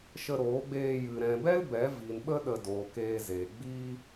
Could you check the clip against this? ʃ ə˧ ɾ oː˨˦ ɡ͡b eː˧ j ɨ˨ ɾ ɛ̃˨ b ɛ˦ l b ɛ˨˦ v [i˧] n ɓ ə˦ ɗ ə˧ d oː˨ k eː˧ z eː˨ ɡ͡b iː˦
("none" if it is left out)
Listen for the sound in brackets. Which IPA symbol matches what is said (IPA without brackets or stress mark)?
i˨